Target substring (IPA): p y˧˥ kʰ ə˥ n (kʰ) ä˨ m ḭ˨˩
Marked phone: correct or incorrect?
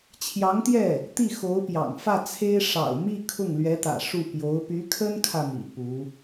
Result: correct